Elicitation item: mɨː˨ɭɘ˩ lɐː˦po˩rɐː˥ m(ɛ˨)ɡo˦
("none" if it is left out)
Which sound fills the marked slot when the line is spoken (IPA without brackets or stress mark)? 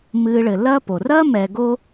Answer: ɛ˨